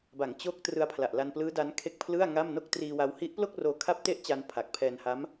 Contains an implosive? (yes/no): no